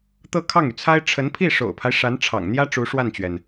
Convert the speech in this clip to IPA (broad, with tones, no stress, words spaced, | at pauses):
t̪ɤ˥˧kʰɑ˥˩ŋy˩t͡sʰa˥ɪ̯ ʈ͡ʂʰə˧˥npʰi˥˩ʂo̰˨˩ʊ̯pʰa˦ɪ̯ ʂa˧˥nʈ͡ʂʰɑ̰˨˩ŋn̪jä˥ ʈ͡ʂu˧˥ʂwa˥˩nt͡ɕɥɛ˩n